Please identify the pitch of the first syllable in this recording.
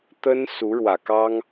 high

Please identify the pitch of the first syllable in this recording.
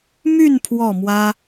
falling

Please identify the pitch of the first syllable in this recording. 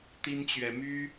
high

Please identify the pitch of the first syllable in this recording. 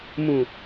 low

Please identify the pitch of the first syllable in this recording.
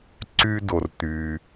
high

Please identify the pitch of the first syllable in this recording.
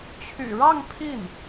low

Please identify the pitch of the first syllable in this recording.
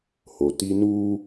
low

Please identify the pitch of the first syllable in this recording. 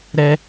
high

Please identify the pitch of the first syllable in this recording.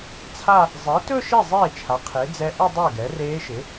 falling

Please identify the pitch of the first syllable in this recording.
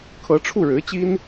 rising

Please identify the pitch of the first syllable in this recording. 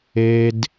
high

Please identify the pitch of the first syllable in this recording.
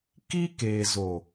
high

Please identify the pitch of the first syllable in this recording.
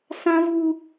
high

